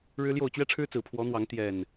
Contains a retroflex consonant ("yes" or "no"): yes